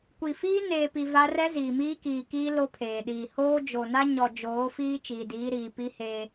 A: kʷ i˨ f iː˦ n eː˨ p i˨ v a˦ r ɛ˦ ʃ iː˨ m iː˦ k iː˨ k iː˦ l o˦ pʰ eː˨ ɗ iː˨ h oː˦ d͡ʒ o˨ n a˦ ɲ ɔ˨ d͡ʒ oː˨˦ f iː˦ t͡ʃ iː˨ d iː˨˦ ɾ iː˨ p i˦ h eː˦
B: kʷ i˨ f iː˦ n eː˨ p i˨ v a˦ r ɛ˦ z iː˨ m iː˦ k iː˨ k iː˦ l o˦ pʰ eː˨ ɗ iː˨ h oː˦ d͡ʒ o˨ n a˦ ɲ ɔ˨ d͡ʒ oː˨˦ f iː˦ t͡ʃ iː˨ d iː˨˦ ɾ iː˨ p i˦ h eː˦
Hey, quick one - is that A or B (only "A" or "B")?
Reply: B